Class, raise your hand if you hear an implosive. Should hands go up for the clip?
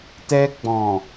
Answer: no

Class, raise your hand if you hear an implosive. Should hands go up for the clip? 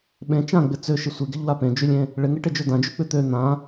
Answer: yes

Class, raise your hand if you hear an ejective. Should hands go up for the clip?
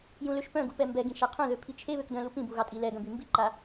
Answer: yes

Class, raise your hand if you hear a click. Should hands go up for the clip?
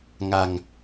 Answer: no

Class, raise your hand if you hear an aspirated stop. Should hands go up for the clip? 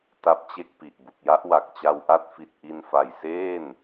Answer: no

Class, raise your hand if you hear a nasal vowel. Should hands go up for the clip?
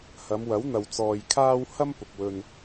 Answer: no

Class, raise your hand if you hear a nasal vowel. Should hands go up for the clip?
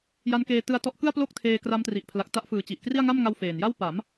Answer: no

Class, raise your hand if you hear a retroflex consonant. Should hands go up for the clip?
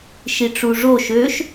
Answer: yes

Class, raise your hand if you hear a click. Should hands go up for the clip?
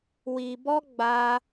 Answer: no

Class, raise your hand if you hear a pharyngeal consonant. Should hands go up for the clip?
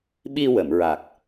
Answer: no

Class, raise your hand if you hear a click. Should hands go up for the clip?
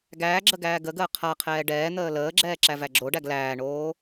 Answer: yes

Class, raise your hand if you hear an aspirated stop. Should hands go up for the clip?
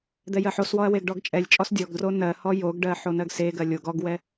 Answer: no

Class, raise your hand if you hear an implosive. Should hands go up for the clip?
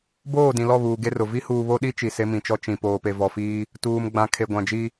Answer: yes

